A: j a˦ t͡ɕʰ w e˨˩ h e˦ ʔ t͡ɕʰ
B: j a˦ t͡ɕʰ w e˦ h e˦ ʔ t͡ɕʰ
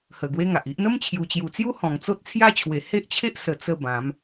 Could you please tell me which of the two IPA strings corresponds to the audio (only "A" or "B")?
A